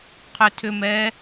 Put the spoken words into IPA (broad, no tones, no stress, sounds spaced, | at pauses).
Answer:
qʰ ʏ tʰ ʏ m ɛ